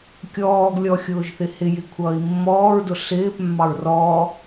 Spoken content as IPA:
kʲ ɔː ɡ lʲ ɔ xʲ ʊː ʒ θ ɪ h ɪ j ɪ kʷʰ ʌː i̯ mː ɔː ɹ d ʊ ɬ ɪː p mː ɑ ɹ r ɔ

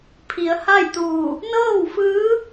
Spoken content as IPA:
pʰ i˩˧ ə̯ h a˥˨ j t̪ uː˧˩ | n ɤː˥˨ w f ɯː˧˥

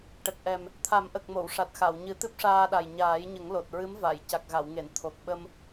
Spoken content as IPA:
ʈ ə˨˩ k̚ ʔ ɛ˨˩ m | t̪ʰ a˨˩˦ m ʔ ə˨˩ k̚ m o˨˩˨ w ʂ a˨˩ t̚ x a˨˩˨ w ɲ ɨ˨˩˦ t̪ ɨ˦˥ p̚ ʂ aː˧ ɗ a˨˩ j ɲ aː˨˩˦ j ɲ ə˨˩˦ ŋ l o˨˩ t̚ ɹ ɨ˧˥ m v a˨˩˨ j c a˨˩ k̚ ɣ a˨˩˨ w ŋ e˨˩˨ n t̪ʰ o˨˩ k̚ ɓ ə˧ m

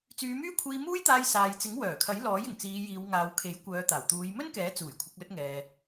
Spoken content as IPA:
t͡s yː˨˧ m yː˥ kʷʰ iː˧ m uː˥ j t̪ aː˧ j s aː˨ j t͡s ɪ˨˥ ŋ w œː˨˩ kʰ ɐ˨˥ j l ɔː˨˥ j ɪ˨˩ ŋ t͡s iː˨˧ j iː˨˧ w ŋ aː˨˧ w kʰ e˨˥ j kʷ œː˨˧ t̪ aː˨˩ w t̪ uː˨˧ j m ɵ˥ n k ɛː˨˥ t͡s uː˨˩ j kʷʰ ɪ˨˥ k̚ l ɵ˥ t̚ ŋ ɛː˧

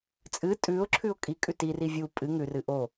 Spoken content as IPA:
t͡sʼ ɨ tʼ ʉ ʊ̯ ǁʰ ʉ ʊ̯ kʼ i kʼ ʉ t i r i vʲ u pʼ ɨ ŋ ʉ r ɨ ʔ o

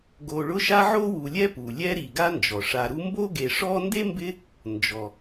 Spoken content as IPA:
ɡ o˨ ɭ ʊ˦ ʃ a˦ ʕ o˥ w u˨ lʲ ɛ˥ p u˩ lʲ ɛ˦ ɾ i˩ ɡ a˦ n d͡ʒ ɔ˩ ʂ a˨ ɾ u˦ m b o˥ ɡ e˨ ʂ ɔ˥ n d e˥ m b ɪ˦ | n d͡ʒ ɔ˩

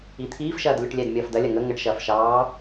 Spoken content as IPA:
i t̪ʰ iː f ʃ ɐː d lʲ o ʈ lʲ ɛː d mʲ ɐː f d ɐ lʲ ɐ ŋ ə ŋ ə ʈ ʃ ɐː f ʃ ɑː

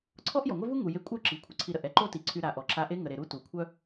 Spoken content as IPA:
ǀʰ ɔ˥ ʔ j ɔ˩ ŋʷ œ˥ v u˥ ŋ u˩ j e˧ kʷʼ œ˥ ǁ i˩ kʷʰ ə˩ ǀʰ i˧ ɾ ə˩ ʔ ɛ˥ ǃ o˥ t i˩ ǀʰ y˧ ɾ a˩ ʔ ɔ˩ ǁ a˧ ʔ e˥ ŋ ə˩ ɾ e˩ ɾ u˥ t u˩ kʷʰ œ˥

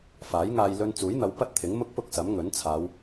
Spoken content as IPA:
f aː˨˥ j ŋ aː˧ j l ɵ˧ n t͡s uː˨˥ j n̪ ɐ˨˧ w p ɐ˥ t̚ t̪ʰ ɪ˨˥ ŋ m ʊ˥ k̚ p ʊ˥ k̚ s ɐ˨˥ m ŋ ɵ˨˥ n t͡sʰ aː˨˧ w

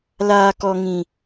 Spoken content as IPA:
l aː˨ k ɔ˨ ŋ ĩ˨

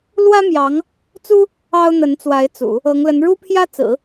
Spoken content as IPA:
l w ä˥ m j ɑ˧˥ ŋ | t͡s u˥ | ɑ˥ ʊ̯ n̪ ə˧˥ n t͡s w a˧˥ ɪ̯ t͡s ṵ˨˩˦ | ɤ˧˥ ŋ l ə˧˥ n ɻ u˥ pʰ j ä˥ t͡s ɹ̩˨˩˦

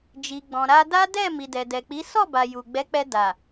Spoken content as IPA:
d͡ʒ i˨ ɡ͡b ɔ̃˨ ɾ a˧ d a˦ d ɛ˦˨ m i˨ d ɛ˨ d ɛ˨ k͡p i˨˦ s ɔ˦˨ b a˨ j u˨ ɡ͡b ɛ˨˦ k͡p ɛ˧ d a˨

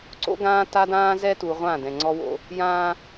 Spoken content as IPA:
ǀ o̰˦ ɡ ãː˦ t a˦ d ãː˦ z ɛ˦ t u˨ ʁʷ ã˦˨ d ɛ̃˨ ŋ͡ǀ ɔ˦ w o̰˦ | j ãː˦

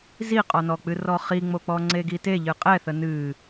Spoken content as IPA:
z i qʼ ɔ n ɔ k͡p ɨ r ɔ χ i ŋ͡m o k͡p ɔ ŋ͡ǀ e ɡ i t e ʎ ɨ qʼ ɛ θ ə n ɨ

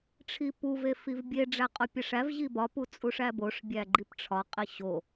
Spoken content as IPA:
ʈ͡ʂʰ i p u v e f i v bʲ e ɖ͡ʐ æ qʼ o pʲ æ ʂ æ v ʑ i b ɒ p u t͡sʼ u ʂ æ b o ʂ bʲ æ ɡ͡ǃ i p ʈ͡ʂʰ ɒ qʼ i ɕ o

